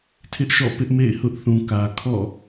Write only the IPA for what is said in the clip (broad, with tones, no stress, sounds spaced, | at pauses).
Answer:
tʰ ɪ˦ ʔ ʃ ɔ̰˦˨ p ɪ˦ ʔ m ḛ˦˨ ɪ̯ h ʊ˦ ʔ θ ũ˨ k ä˨ kʰ ɔ̰˦˨